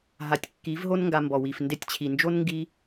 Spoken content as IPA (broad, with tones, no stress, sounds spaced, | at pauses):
ɦ a˨˦ tʲ kː i˨˦ v ɦ o˦ n ŋ ɡ a˧ m b ɔ˨ w i˨ f n d e˧ tʲ t͡ɕʰ i˨ n d͡ʒ o˦ n ŋ ɡ i˧